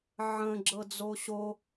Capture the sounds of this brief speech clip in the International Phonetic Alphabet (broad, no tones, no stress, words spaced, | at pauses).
ʕə̃ ɡ͡ǁɤd͡zoɕo